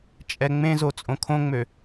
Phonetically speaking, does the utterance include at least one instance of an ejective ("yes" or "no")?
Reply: yes